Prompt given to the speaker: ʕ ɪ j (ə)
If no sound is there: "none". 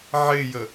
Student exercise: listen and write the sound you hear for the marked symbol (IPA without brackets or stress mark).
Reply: ə